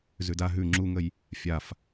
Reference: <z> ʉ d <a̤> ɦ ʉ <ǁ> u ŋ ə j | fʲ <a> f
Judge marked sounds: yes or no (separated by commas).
yes, no, no, yes